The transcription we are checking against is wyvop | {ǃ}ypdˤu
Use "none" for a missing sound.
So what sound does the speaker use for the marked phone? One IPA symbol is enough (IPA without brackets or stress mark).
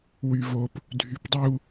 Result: dʱ